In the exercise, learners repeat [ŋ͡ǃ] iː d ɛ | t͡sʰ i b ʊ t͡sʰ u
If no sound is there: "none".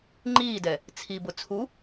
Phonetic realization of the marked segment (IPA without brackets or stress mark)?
ŋ͡ǃ